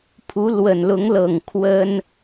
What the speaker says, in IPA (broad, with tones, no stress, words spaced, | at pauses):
pʰu˧˥lwə˨˩nlʊ˧˥ŋlɤ˨˩ŋ kʰwə˥n